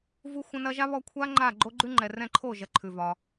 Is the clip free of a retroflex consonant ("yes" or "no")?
yes